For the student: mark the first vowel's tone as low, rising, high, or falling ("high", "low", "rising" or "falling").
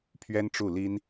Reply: high